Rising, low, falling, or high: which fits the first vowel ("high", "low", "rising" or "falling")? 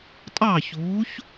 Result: falling